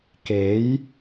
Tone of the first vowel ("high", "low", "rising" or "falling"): rising